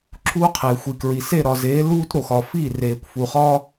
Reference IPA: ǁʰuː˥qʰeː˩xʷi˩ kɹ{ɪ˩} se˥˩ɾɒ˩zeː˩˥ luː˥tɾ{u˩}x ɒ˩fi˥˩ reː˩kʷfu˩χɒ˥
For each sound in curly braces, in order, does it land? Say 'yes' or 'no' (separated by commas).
no, no